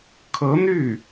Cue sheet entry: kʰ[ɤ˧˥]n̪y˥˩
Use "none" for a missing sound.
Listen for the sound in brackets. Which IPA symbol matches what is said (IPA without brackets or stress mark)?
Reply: ɤ˧˥